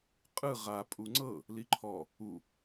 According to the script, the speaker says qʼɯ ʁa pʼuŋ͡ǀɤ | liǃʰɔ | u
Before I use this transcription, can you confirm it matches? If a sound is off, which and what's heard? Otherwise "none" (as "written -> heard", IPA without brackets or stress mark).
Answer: none